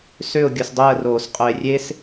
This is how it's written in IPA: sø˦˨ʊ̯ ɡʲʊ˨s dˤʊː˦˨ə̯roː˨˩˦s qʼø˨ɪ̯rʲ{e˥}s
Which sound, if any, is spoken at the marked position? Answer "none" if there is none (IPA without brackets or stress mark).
e˥